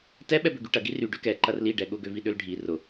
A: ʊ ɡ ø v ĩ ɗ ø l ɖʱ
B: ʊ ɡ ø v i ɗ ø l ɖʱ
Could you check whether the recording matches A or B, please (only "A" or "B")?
B